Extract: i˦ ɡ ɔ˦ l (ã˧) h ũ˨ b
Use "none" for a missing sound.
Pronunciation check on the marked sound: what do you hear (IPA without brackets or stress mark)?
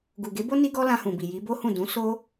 ã˧